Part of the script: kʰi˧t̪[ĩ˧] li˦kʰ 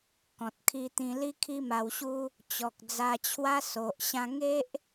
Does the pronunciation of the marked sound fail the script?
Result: no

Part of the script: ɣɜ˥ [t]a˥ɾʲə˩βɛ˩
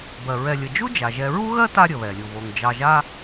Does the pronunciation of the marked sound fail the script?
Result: no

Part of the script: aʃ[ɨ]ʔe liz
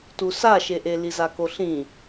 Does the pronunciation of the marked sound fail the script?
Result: yes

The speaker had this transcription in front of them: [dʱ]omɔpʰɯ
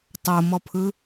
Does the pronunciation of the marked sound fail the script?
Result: yes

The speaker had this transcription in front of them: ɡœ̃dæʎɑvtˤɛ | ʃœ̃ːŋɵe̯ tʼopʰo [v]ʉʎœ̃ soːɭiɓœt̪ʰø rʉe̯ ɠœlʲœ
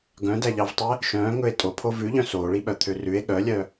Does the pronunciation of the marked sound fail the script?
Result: no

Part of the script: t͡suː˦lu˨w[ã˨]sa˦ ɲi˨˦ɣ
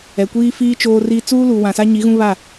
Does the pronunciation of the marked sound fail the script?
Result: no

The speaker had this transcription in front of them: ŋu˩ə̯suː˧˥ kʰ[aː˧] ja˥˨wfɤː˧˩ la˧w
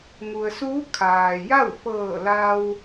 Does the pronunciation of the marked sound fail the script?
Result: yes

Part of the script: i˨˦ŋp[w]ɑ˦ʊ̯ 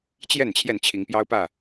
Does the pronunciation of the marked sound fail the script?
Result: yes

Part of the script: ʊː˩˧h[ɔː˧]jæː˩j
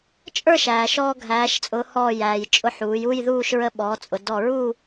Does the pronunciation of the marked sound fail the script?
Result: yes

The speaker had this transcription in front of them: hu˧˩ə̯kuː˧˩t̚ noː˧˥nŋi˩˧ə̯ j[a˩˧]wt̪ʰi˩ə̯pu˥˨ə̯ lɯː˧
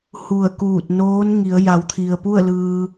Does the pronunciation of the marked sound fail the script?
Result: no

